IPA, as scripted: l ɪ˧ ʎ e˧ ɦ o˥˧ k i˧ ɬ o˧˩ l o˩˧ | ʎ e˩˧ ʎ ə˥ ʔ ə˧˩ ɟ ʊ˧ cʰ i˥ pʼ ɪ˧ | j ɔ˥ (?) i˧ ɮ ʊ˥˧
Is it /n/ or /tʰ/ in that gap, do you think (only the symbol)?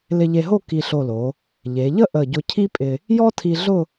tʰ